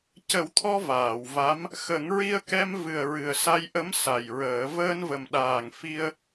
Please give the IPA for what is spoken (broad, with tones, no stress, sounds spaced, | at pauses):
c ə˨˩˦ w t̪ʰ ɔ˧ v aː˨˩˨ w v a˧˥ m | x ə˨˩˦ ŋ ɹ i˧ ə̯ k ɛ˧ m v ɨ˨˩ ə̯ ɹ ɨ˨˩ ə̯ s a˧ j ʔ ə˧˥ m s a˨˩ j ɹ əː˨˩˦ v əː˧ n v ə˨˩ m ɗ aː˨˩ ŋ f i˧ ə̯